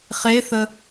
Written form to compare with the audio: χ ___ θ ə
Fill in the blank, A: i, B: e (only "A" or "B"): B